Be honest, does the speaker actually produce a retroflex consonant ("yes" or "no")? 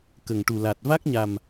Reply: yes